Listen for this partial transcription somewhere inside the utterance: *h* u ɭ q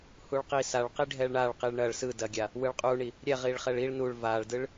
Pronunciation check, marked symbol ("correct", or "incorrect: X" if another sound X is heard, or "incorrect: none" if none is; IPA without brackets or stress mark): correct